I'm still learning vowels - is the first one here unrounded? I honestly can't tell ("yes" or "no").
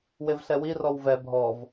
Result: yes